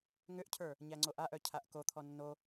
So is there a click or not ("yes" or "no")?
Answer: yes